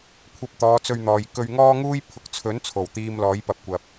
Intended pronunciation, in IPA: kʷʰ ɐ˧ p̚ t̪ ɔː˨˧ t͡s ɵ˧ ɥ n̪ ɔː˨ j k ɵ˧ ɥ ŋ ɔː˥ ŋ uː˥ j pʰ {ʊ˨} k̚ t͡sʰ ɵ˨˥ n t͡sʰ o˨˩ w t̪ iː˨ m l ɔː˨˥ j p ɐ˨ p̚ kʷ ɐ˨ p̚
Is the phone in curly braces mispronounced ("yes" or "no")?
no